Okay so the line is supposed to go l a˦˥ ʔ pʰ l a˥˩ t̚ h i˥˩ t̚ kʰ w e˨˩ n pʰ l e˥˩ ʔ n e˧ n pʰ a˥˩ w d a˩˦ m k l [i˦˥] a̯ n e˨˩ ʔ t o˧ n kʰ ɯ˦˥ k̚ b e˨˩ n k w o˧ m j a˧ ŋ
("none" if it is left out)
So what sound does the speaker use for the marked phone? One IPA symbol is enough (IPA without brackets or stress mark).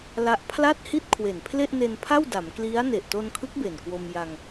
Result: i˦˥